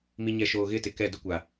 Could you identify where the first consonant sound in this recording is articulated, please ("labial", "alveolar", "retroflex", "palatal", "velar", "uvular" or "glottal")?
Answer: labial